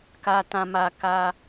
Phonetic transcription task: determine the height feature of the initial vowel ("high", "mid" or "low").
low